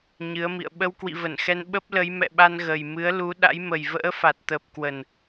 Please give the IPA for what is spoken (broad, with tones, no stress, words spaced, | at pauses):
ɲɨ˨˦ə̯mḭ˧˨ə̯ ɓə˧w kwḭ˧˨və˧˩nxɛ˧n ɓə˦˥p̚lə˨˦j mɛ̰˧˨ɓa˧n ɣə˨˩j mɨ˨˦ə̯lu˨˦ɗa̰˧˥jmə˨˩j və̰ː˧˥fa˨˩t̚ t̪əː˨˩p̚kwə˨˩n